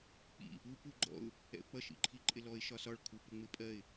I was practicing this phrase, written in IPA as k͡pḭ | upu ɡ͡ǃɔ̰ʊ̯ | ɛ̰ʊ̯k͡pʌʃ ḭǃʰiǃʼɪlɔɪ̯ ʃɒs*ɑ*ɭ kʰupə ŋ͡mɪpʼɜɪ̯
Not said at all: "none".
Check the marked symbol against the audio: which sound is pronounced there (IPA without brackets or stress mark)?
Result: ɒ